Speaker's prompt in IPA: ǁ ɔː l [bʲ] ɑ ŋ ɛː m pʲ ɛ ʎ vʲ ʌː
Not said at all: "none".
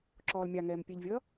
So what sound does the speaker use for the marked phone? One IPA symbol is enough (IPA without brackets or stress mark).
mʲ